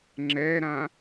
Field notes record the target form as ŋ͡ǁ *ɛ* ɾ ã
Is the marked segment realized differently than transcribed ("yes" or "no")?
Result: no